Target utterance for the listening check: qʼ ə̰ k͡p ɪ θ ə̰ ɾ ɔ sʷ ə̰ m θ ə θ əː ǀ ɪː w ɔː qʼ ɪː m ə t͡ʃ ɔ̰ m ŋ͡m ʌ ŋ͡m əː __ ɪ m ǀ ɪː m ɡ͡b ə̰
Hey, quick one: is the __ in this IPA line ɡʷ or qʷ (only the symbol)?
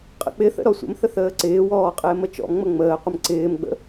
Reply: qʷ